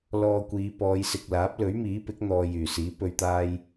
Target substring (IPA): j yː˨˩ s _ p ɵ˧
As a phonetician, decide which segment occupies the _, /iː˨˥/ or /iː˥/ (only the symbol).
iː˨˥